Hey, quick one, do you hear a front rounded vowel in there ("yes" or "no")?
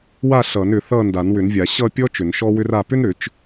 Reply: yes